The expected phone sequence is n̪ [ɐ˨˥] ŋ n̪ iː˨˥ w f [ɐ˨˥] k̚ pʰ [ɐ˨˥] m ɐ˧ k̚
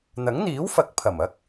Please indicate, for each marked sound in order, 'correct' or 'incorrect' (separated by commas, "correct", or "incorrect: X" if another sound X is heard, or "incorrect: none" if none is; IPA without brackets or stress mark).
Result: correct, correct, incorrect: ɐ˨˩